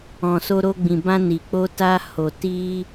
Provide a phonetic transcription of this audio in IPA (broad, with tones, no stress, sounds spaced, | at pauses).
ɔ̃˨ s o˧ ɾ o˧ ɡ͡b ĩ˨ b ã˧ n i˨ k͡p o˧ t a˧ h o˨ t i˧